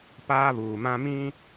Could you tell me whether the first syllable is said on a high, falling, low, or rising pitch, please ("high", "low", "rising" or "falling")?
high